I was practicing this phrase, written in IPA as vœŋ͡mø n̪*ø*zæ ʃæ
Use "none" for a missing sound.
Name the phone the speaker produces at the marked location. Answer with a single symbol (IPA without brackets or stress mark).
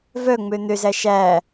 ø